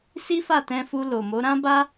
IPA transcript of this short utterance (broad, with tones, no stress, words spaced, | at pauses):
si˦fa˦˨tɛ̃˧fu˧ lo˨ mo˨˦ɾã˦ba˦